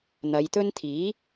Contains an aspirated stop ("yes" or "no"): yes